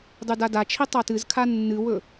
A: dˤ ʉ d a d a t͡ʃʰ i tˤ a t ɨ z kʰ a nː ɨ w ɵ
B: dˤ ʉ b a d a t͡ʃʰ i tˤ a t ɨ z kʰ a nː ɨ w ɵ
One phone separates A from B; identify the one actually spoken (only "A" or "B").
A